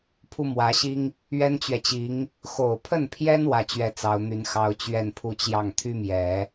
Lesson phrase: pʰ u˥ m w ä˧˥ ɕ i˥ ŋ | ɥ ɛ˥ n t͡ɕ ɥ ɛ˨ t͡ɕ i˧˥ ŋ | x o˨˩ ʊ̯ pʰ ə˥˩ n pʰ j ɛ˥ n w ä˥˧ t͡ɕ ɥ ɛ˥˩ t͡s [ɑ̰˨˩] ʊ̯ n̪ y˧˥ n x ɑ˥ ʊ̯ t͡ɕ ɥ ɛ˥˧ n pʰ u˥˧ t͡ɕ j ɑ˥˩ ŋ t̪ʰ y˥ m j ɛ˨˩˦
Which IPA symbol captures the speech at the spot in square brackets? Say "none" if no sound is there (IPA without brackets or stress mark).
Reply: ɑ˧˥